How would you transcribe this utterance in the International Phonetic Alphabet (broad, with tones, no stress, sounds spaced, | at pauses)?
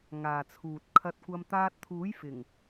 ŋ aː˨ t͡sʰ uː˨ t̚ kʰ ɐ˧ t̚ kʷ ɐ˧ m t̪ aː˧ t̚ t̪ʰ uː˨˥ j f ɪ˨˩ ŋ